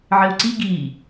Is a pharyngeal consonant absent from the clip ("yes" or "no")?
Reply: no